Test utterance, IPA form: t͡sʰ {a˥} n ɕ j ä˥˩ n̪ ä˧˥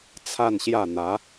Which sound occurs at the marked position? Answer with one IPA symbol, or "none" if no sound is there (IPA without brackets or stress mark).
a˥˧